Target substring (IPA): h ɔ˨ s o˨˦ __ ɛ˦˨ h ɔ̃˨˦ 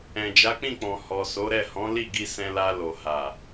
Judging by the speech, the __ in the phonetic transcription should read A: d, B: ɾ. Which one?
B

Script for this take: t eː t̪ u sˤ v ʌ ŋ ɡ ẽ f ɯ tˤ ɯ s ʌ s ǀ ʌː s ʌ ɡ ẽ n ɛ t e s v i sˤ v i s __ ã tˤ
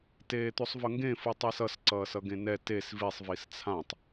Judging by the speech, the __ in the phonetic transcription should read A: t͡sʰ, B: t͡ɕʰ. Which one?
A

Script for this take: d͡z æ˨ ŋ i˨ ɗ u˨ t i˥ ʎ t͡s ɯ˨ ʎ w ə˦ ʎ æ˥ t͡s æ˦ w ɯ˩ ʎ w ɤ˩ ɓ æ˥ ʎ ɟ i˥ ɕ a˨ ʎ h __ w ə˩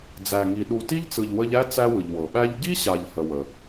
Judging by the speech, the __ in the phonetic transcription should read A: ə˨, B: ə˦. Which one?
A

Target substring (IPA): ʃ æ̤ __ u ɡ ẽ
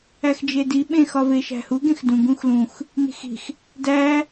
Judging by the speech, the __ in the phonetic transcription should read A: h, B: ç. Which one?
A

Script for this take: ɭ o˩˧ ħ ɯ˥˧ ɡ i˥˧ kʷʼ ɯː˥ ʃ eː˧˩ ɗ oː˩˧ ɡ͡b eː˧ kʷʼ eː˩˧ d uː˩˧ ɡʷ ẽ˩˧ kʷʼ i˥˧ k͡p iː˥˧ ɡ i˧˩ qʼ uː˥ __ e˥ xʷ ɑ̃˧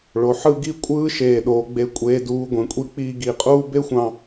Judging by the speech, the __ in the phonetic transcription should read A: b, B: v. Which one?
A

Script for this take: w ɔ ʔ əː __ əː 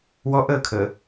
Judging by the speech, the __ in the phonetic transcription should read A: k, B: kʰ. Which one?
B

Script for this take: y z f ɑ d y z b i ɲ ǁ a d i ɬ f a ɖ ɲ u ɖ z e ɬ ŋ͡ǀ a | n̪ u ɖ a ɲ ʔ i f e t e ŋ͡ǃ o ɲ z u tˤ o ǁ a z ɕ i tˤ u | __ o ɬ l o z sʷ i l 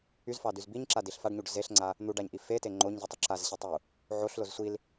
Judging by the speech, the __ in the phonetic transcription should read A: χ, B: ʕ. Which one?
B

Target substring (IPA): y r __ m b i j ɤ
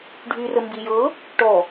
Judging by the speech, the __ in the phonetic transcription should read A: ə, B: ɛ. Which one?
A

